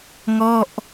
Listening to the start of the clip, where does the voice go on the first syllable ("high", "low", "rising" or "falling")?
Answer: falling